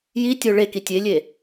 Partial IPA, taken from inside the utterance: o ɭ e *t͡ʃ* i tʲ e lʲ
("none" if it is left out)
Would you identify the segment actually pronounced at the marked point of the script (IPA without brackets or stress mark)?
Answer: k